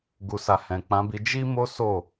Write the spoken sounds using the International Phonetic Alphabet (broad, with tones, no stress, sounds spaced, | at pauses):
ɡ u˨ s a˨ h ɛ̃˨ k͡p ã˨˦ b i˧ d͡ʒ i˦ m o˦ s o˦˨